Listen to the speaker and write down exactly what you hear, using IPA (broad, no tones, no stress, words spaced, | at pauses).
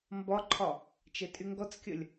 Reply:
mbɒǃʰɒ | t͡ʃɛtʼyŋɡɔt͡skʲəlʲ